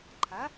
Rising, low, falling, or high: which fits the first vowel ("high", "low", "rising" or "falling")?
rising